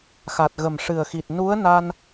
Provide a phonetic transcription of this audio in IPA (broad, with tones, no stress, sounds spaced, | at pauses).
x a˨˩ t̚ ɣ ə˨˩ m ʂ ɨ˨˩ ə̯ x i˨˩ t̚ n u˧˥ ə̯ n a˧ n